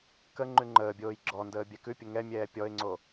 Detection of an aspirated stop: absent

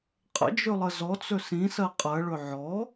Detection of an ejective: present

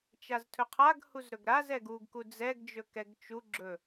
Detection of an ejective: absent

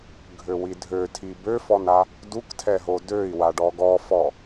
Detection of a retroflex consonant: present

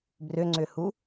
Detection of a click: present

